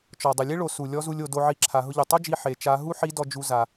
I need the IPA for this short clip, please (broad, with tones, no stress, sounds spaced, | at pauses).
t͡ʃ ɔ˩ dˤ ʊ˩ lʲ e˥ ɭ o˩˧ s u˩ lʲ ɔ˧˥ z u˧ lʲ o˩˧ d o˧ ʕ i˧ ǁʰ a˩˧ ɦ ʊ˧ ʎ u˩ tˤ u˥ d͡ʒ i˧ ħ e˩˧ t͡ʃ a˧˥ ɦ u˥ ħ i˧˥ d ɔ˧ d͡ʒ u˧ z a˩